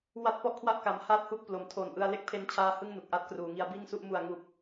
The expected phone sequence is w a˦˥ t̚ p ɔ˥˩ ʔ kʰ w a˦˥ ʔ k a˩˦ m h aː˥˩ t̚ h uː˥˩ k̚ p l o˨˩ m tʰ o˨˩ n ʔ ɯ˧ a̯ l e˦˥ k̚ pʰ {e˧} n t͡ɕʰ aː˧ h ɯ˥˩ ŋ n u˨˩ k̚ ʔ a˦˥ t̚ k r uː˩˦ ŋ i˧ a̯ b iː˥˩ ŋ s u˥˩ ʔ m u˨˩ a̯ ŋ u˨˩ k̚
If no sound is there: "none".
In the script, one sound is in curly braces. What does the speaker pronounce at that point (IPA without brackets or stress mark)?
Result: e˧